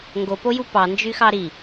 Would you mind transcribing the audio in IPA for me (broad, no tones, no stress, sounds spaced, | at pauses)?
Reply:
ŋ ɡ o p o j u p ɑ n d͡ʒ y x ɑ ɾ i